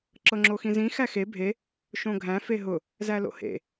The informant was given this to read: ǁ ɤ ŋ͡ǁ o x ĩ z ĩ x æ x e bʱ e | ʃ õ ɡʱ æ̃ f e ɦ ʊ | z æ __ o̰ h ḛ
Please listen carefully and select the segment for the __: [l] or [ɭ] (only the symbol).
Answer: l